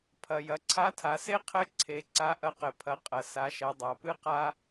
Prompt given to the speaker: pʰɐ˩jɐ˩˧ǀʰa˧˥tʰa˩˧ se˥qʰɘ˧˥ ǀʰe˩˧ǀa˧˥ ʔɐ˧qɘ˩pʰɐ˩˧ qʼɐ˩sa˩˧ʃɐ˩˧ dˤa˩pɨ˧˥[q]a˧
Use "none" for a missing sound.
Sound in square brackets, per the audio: q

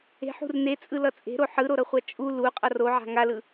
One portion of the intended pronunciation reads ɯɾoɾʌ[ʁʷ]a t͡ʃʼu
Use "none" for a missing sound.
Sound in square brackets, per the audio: χʷ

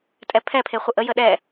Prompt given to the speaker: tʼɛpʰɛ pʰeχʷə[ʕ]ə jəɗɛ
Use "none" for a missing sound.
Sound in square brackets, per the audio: ʔ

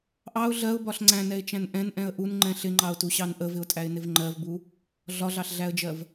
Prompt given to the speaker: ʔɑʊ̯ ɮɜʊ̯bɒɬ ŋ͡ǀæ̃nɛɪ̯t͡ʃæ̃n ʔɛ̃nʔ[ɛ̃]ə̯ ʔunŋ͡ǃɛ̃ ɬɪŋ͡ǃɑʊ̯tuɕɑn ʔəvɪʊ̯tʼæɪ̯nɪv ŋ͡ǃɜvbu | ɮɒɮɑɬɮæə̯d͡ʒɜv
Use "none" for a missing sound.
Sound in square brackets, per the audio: ɛ̃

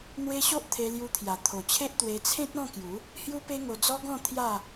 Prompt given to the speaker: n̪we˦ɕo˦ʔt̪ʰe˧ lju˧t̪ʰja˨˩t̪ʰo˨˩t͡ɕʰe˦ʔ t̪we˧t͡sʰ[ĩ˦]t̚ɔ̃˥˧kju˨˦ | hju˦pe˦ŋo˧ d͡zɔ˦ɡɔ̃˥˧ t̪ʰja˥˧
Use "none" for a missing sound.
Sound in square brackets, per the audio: ẽ˦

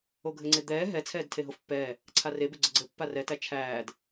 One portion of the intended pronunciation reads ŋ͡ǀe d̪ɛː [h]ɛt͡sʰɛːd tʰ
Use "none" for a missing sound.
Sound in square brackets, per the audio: ɦ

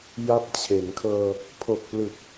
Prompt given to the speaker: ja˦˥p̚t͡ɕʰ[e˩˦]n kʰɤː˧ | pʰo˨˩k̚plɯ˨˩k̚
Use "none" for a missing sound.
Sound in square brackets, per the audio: e˩˦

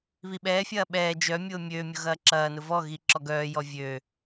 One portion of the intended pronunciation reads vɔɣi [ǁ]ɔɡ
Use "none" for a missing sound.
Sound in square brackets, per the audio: ǁ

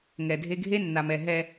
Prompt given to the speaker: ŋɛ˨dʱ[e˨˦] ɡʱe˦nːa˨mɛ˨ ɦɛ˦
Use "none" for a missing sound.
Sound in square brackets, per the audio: e˦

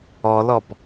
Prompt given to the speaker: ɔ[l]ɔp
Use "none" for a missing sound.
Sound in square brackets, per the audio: l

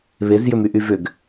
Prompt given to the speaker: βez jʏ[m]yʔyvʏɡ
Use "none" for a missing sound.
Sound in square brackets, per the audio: m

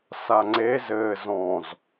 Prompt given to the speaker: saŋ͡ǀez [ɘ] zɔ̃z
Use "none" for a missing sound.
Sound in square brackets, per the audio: ɘ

